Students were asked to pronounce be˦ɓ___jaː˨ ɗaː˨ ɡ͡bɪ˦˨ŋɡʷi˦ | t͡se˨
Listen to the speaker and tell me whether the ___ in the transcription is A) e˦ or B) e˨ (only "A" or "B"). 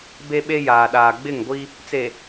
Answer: A